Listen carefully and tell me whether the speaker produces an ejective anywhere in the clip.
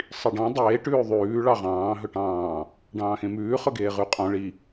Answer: yes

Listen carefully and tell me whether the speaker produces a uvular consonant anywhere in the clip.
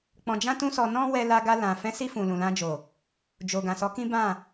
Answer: no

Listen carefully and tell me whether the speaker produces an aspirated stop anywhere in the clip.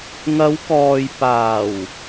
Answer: no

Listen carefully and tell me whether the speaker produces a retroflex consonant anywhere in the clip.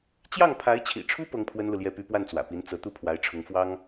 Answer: yes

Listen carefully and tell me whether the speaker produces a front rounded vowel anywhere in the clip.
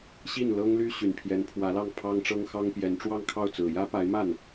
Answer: yes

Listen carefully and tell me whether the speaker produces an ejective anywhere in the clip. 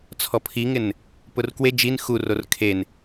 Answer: no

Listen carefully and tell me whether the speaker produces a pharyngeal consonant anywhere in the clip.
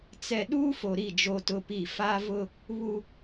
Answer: no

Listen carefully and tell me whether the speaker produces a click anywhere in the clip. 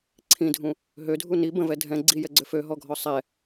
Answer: yes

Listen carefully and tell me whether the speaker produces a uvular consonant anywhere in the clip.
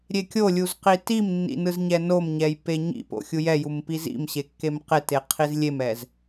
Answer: yes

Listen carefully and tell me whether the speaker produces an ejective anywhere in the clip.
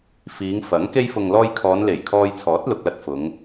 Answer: no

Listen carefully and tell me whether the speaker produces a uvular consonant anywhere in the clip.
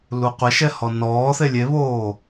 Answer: yes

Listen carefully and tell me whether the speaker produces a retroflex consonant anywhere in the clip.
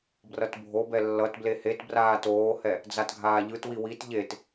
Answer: no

